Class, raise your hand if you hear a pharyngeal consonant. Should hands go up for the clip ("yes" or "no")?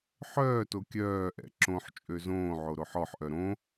yes